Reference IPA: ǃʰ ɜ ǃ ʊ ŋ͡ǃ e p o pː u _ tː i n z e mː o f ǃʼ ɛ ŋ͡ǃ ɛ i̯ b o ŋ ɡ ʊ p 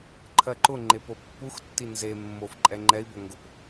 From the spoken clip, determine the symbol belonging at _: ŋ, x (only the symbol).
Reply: x